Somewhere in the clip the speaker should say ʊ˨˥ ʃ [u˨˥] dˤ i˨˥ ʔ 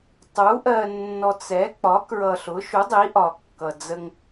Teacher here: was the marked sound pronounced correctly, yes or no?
yes